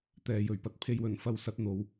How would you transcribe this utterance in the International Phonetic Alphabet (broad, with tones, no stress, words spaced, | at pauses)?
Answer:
t̪ɛː˨jɵ˨˩ɥpɐ˨t̚ pʰe˧jwɵ˨˩nfɐ˧wsɐ˨˥t̚ n̪o˨˧w